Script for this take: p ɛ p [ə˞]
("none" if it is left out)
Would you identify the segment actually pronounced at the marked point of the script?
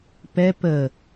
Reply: ə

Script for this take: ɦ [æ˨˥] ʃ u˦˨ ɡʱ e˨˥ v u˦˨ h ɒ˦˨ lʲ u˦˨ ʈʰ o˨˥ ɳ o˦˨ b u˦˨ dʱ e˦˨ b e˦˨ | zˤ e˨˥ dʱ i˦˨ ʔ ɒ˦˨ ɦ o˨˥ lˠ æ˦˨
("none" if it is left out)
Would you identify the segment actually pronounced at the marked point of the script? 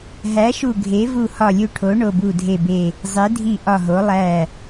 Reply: æ˨˥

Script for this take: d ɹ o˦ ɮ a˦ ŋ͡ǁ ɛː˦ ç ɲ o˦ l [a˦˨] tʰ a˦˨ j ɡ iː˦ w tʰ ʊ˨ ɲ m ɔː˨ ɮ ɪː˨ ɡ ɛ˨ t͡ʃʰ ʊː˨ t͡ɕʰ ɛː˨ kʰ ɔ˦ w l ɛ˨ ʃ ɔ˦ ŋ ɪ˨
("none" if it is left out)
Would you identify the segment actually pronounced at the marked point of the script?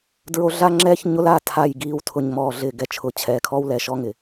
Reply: a˦˨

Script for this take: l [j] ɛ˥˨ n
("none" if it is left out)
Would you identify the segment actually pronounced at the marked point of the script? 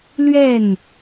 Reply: ɥ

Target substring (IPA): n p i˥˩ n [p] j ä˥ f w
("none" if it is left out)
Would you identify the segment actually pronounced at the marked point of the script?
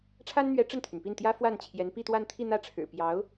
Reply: t̪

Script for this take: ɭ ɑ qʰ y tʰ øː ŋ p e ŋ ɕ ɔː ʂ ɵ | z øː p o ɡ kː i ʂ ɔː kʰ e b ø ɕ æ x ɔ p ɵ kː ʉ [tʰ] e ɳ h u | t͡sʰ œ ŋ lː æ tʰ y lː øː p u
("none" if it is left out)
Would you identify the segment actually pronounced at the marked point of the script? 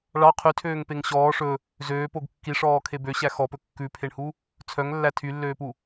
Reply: pʰ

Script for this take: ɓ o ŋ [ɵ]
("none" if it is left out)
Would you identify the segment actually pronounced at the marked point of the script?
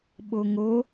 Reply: o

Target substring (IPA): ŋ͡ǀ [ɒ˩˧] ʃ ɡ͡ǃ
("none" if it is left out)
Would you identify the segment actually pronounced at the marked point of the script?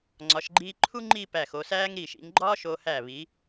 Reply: ɒ˩˧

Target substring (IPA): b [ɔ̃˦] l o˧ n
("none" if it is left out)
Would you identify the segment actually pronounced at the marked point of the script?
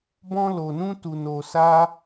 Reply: ɔ̃˦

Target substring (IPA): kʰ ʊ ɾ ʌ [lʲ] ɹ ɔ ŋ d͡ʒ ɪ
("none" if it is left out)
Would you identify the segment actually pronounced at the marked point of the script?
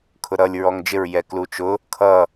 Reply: lʲ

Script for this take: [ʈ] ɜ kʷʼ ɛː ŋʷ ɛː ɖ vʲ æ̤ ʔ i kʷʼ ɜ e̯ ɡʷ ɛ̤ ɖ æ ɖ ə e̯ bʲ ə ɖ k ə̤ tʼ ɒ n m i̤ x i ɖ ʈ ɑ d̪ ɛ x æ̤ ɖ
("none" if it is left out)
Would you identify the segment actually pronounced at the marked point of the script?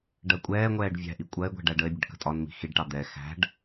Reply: ɖ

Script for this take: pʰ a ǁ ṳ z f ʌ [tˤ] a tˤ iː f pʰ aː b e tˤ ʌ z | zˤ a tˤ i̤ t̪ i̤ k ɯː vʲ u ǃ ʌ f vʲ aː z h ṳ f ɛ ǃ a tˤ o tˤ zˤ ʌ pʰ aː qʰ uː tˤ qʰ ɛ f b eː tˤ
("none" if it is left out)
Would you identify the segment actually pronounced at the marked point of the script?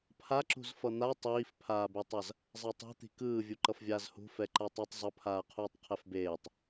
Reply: n̪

